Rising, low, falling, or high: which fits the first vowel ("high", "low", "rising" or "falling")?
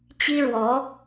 high